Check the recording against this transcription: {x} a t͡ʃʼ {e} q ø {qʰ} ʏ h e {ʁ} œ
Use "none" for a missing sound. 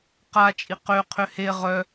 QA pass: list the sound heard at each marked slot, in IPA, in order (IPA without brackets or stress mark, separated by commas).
q, i, qʰ, ʁ